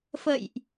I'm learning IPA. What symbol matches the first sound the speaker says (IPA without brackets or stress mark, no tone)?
f